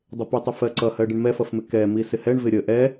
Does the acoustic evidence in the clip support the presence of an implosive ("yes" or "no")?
no